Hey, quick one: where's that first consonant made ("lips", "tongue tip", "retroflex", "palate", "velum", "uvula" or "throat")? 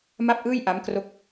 lips